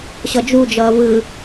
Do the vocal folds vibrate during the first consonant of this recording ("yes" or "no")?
no